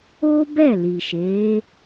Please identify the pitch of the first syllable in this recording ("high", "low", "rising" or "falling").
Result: high